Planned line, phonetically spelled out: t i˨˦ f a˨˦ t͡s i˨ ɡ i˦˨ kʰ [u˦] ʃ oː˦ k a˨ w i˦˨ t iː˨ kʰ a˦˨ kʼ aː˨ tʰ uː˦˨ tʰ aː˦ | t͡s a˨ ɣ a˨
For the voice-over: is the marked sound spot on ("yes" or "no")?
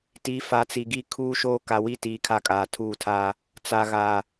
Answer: no